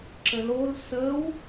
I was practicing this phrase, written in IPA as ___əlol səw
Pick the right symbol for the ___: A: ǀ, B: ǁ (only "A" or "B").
B